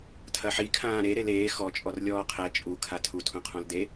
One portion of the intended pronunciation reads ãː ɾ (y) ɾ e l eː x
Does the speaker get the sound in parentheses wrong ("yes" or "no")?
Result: yes